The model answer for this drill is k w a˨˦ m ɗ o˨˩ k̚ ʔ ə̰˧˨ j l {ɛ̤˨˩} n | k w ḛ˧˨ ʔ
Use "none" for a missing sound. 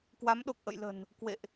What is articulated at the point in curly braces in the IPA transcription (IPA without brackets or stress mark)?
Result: ə̤˨˩